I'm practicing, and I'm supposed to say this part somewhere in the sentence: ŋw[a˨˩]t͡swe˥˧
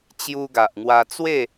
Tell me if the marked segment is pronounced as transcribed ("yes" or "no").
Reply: no